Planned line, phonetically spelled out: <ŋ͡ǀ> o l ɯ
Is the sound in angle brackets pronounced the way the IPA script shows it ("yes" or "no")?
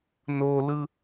no